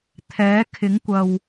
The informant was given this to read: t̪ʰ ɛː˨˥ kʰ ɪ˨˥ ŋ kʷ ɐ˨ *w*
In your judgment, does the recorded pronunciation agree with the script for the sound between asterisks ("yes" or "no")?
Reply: yes